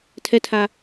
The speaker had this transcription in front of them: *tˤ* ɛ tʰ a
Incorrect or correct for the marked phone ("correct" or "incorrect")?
incorrect